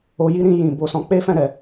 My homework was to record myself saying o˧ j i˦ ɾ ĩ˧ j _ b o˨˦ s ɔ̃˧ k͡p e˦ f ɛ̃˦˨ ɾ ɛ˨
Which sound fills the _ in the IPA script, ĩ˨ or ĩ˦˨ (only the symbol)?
ĩ˨